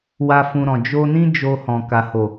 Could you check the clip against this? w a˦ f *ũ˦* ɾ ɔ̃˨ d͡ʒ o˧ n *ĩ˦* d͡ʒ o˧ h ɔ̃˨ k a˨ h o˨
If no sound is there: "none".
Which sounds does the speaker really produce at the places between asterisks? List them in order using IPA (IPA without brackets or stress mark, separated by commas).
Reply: ũ˧, ĩ˦